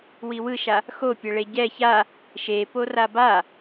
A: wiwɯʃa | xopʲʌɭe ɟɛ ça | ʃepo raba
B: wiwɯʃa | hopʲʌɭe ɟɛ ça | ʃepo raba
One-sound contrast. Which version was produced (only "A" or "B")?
A